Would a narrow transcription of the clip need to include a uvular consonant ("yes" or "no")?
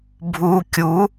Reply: no